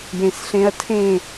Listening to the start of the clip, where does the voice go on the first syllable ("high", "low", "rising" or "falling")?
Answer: low